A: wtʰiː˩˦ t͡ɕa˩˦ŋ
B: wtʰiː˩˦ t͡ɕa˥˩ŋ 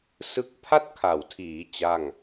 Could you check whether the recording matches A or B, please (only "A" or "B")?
B